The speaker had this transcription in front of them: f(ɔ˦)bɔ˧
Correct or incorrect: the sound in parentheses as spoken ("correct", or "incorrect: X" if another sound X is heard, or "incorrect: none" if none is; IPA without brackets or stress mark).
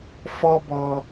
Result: correct